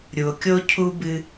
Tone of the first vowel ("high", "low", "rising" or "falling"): low